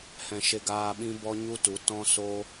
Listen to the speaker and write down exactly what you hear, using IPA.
h ɛ̃˨ ʃ e˧ ɡ aː˧ ɓ ĩ˦ b ɔ˦ ɲ u˦ t u˨˦ t ɔ̃˦ s oː˦

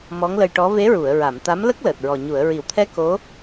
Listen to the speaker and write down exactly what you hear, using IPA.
m ɔ˧˥ ŋ l ə˧ j ʈ ɔ˧˥ v e˧˥ ɹ u˨˩˨ ə̯ ɹ a˨˩˨ m t̪ a˧˥ m l ə˦˥ k̚ l əː˨˩ t̚ ɹ ɔ˨˩ ɲ u˨˩˨ ə̯ ɹ i˨˩˨ w t̪ʰ ɛ˧ k o˧˥

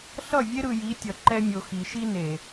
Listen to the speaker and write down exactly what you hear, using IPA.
ɬ ʌ˦˨ vʲ e˦ ɾ ɯ˨ j i˨˦ tʲ ʌ˨ ǃ ɛ˦ mʲ o˨ x i˨ ʃ i˦ n e˨

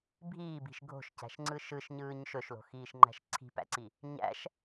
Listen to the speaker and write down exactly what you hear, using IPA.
bʱ iː b i̤ ʃ ɡʱ o̤ ʃ c æ̤ ʃ ŋ͡ǀ ɯ ʃ ɯ ʃ ɲ ɯː ɲ ʃ ɵ ʃ l o̤ x iː ʃ ŋ͡ǃ æ̤ ʃ ǀʰ i̤ p æ̰ ǀ i | ɲ æ̰ ʃ

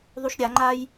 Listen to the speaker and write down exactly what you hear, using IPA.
ðˤ u ʃ ɾʲ a ŋ͡ǃ a j

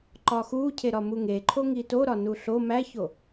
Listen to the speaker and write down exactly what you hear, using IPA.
ǃ ɒ x u cʰ e ɾ ɒ m u ŋ e ǃʰ o ŋ i t o ɾ ɒ n u ɬ o m æ ç o

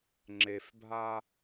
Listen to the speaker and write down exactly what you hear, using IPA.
ŋ͡ǁ e f bʱ a

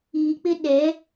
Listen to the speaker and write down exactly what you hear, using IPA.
iː˨ k͡p ɪ˦ ɗ ɛ˨˦

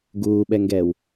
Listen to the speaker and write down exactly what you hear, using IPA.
ɡ uː ɓ ɛ ŋ ɡ ɛː w

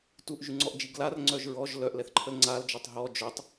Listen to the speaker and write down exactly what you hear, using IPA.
t u ʔ ʒ y ŋ͡ǀ ɔ ʔ d͡ʒ i ɡ l a r ŋ͡ǀ œ ʒ ɹ ɔ ʒ l œ ʔ l ɛ θ ǃʰ ə l ŋ͡ǀ a l d͡ʒ ɔ tˤ ɦ ɔ d͡ʒ œ tˤ

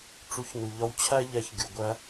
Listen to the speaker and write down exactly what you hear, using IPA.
ʈ͡ʂ u˩˥ ç n u˩ ʎ ɒ˧ w t͡ɕʰ æ˥ ʎ æ˧ ç ɡʲ u˩ ɡʷ æ˧

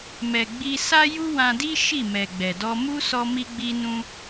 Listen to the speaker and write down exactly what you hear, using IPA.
m ɛ˨ ɡ͡b i˧ s a˦ j u˦ w ã˧ d i˦ ʃ i˦˨ m ɛ˨ ɡ͡b ɛ˨ d ɔ˧ m u˦ s ɔ˧ m i˧ ɡ͡b i˧ n ũ˧

